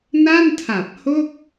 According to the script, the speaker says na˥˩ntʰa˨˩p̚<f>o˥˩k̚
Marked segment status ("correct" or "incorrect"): incorrect